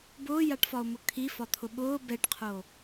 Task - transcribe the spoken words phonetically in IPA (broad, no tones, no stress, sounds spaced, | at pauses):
b ʊː j a ʈ f ɒ o̯ m ʊ kʰ i f ɒ t̪ʰ ʊ ɓ ʊː b ɛ ʈ qʰ o